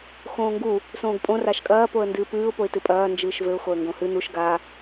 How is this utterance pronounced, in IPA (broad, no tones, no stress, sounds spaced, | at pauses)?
x õː ŋ ɡ u | s õː ɡ pʼ õ r a ʃ kʼ ɐː p o ə̯ n d ɨː p ɨː ʊ̯ p o ɪ̯ t ɨ pʼ ɐː n d͡ʒ ɨː ʃ v ɘ ʊ̯ x o ə̯ ŋ ɡ õ h ɨ n̪ u ʃ ɡ a